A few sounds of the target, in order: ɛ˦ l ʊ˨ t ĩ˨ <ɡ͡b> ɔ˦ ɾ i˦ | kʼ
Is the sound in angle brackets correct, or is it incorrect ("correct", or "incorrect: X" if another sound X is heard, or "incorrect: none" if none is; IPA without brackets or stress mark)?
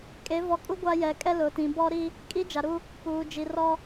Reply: incorrect: b